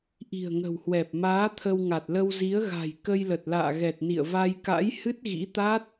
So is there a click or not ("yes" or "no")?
no